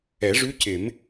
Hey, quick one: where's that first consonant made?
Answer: retroflex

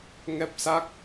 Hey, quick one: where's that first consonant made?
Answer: velum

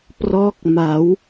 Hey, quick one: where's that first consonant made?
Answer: lips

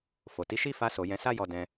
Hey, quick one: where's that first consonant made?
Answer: lips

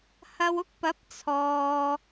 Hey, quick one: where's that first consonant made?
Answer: throat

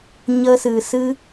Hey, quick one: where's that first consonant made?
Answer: palate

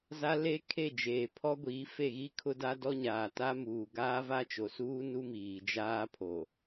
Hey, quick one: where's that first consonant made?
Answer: tongue tip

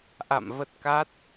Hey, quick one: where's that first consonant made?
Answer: throat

